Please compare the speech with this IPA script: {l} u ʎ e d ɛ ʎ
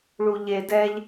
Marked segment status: incorrect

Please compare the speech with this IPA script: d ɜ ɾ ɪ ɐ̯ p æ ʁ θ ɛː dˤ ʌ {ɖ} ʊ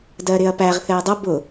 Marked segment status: incorrect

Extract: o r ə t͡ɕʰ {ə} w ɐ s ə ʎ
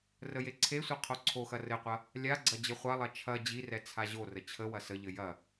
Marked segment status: correct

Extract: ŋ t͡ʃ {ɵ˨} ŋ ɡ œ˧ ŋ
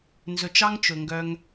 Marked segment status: correct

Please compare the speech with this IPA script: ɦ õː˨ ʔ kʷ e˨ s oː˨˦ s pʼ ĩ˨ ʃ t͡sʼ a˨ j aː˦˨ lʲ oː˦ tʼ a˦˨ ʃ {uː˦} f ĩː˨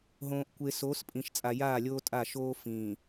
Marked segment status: incorrect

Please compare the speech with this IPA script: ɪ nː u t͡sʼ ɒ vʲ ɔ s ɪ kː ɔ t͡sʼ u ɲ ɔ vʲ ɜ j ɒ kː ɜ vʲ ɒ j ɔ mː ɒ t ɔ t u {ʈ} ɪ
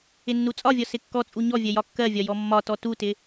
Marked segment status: incorrect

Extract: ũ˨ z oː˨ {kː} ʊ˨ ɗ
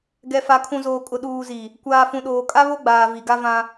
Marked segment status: incorrect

